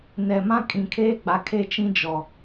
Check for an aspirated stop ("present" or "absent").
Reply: present